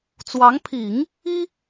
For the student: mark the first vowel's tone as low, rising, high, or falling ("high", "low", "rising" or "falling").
rising